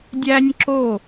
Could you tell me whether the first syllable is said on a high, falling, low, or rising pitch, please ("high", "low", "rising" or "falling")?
high